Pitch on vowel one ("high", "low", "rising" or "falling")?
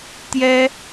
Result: high